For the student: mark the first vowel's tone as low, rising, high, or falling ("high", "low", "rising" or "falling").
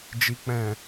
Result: low